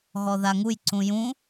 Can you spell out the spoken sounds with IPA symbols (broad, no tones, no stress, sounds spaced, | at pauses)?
ɣ ɔ ð a ŋ u j ǀ ũ j ũ